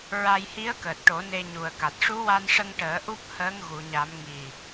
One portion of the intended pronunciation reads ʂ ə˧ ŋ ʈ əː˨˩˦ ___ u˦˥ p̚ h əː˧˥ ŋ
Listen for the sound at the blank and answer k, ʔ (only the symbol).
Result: ʔ